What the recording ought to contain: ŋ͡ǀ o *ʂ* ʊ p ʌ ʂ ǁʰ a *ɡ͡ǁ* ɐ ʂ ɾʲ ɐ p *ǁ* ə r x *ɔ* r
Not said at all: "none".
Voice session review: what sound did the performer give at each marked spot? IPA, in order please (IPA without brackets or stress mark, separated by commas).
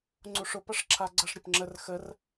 ʂ, ɡ͡ǀ, ŋ͡ǁ, ə